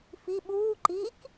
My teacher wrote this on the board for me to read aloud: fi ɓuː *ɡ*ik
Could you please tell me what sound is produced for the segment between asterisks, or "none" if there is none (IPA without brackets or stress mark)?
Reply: ǃ